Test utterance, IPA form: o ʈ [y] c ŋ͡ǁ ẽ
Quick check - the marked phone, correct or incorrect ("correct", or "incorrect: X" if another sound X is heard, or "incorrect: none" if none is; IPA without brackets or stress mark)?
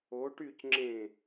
correct